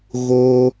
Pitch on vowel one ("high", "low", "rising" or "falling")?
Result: high